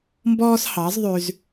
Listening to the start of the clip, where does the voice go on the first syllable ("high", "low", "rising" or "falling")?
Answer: high